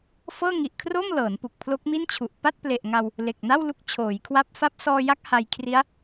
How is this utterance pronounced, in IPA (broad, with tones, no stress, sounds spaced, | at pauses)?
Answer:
f ɤː˥˩ ŋ i˨˩ ʔ kʰ r o˥˩ m l ɤː˩˦ n p u˨˩ k̚ pʰ l o˦˥ k̚ m i˥˩ n t͡ɕʰ u˨˩ ʔ p a˥˩ t̚ p l e˨˩ ʔ ŋ a˧ w | l e˨˩ k̚ n a˥˩ w l u˦˥ k̚ t͡ɕʰ oː˩˦ j kʰ w a˦˥ p̚ f a˥˩ p̚ s ɔː˧ j a˦˥ k̚ h a˧ j kʰ r i˦˥ a̯